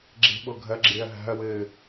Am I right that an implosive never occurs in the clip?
no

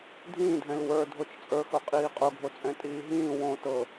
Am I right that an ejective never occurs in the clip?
no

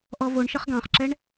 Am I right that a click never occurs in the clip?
no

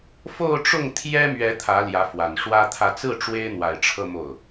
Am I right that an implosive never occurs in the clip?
yes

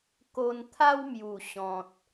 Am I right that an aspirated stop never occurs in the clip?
no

